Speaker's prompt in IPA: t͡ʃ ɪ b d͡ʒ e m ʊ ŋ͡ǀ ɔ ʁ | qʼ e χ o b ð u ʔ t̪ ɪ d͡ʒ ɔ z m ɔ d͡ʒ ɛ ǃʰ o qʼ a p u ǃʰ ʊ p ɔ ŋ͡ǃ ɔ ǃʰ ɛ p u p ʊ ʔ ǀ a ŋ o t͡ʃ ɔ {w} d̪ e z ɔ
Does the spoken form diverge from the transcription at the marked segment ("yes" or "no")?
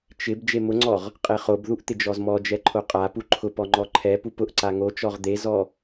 yes